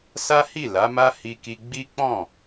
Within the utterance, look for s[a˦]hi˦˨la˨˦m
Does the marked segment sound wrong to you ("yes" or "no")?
no